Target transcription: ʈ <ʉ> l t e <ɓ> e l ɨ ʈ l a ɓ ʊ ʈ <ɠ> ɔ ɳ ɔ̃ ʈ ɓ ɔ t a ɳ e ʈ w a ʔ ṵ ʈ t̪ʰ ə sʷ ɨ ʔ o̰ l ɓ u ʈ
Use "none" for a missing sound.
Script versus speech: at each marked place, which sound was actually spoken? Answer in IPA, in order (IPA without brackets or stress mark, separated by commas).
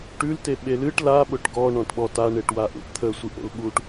ʉ, ɓ, ɡ